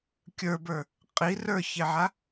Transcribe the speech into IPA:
kʲ ə˞ b ə˞ | qʼ i r ə˞ ç e ʕ a

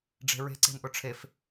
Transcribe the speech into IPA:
ɖ͡ʐ e̤ ɹ e̤ ǀ e̤ n ʔ ʊ ʈ͡ʂʰ e f

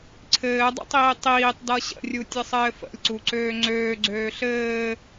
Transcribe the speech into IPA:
ǀʰ ɘː dˤ ə̰ tˤ iː tˤ iː tˤ d ʌ ɕ ə̰ rʲ u tʲ ə sˤ ɘː f ə̰ lʲ ǀ u ǀ øː ŋ͡ǀ øː ɡ͡ǀ øː ɬ ɘː

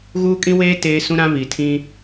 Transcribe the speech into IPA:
ɣ uː˦ kʼ ĩ˦ w eː˦ t eː˦ s ũ˦ ɾ ã˦ β i˨ tʰ ĩ˦

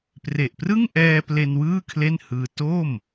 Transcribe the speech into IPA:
p r e˨˩ ʔ p r ɯ˥˩ ŋ ʔ ɛː˧ p l e˧ n w ɯː˥˩ kʰ l e˥˩ n h ɯː˧ t o˥˩ m

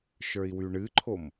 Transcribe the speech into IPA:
ʃ ə˞ i̯ w y ɳ ɨ ǃʰ o m

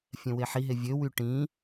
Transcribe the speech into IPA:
fʲ ɛ̃ w e ħ i ɦ e vʲ ø w y ʈ ĩ

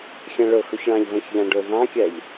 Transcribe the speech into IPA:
xʲ ə̃ ɭ ʊ x ʊ ç ɭ ɑ̃ ʎ v ə̃ ç ʎ ɑ̃ ɖ ʊ ð ɑ̃ kʲ ɜ ʎ

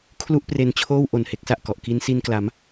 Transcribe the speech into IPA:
kʰ l u˥˩ ʔ p r e˦˥ n t͡ɕʰ oː˥˩ w ʔ o˨˩ n h e˦˥ k̚ s a˨˩ ʔ k ɔ˨˩ ʔ k i˦˥ n s i˧ n k l a˩˦ m

